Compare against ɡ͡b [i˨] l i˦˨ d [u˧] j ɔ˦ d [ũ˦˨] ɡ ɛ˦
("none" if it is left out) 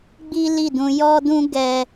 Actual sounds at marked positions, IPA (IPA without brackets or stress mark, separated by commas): i˦, ũ˧, ũ˦